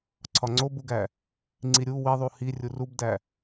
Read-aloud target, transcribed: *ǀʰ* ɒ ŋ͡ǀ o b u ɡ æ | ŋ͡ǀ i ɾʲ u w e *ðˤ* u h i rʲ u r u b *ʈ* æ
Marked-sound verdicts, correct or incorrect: correct, correct, incorrect

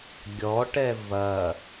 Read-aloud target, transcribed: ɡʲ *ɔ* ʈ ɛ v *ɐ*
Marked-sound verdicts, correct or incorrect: correct, correct

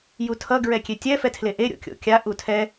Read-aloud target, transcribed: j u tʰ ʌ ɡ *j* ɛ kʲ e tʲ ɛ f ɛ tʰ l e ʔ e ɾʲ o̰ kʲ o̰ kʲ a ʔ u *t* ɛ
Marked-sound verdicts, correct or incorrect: incorrect, incorrect

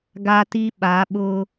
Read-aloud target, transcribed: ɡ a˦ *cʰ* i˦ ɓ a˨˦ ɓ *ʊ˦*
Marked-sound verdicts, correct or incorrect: incorrect, correct

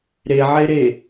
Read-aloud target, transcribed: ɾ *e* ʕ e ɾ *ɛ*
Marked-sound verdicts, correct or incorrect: correct, incorrect

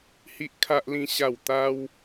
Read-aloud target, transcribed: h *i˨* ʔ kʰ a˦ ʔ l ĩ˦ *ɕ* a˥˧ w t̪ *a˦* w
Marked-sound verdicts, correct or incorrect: incorrect, correct, correct

